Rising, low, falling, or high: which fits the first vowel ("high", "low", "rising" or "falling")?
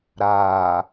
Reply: low